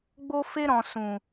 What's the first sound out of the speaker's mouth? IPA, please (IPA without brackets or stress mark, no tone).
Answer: ɡ͡b